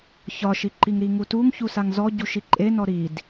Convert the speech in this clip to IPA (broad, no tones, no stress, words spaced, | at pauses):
çɒʃiǃiŋ ɾiŋutuŋ çusaŋzɔ ɟuʃiǃʼenɔ ɾid